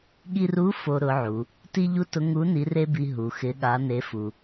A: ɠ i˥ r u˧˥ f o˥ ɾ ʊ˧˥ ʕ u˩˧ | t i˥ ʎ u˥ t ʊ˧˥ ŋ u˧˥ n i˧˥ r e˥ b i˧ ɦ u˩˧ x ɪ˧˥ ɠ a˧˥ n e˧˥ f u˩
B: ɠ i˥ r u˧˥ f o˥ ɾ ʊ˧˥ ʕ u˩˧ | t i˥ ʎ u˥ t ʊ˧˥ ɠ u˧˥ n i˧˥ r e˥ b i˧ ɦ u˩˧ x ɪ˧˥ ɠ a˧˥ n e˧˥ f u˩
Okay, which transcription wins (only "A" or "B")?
A